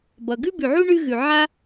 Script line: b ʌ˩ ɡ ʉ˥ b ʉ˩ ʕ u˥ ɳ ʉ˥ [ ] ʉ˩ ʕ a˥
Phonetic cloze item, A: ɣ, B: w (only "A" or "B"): A